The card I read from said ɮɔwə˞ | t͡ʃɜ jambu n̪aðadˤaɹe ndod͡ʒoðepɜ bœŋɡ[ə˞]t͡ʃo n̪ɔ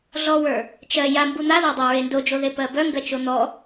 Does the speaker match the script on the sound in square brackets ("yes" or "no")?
no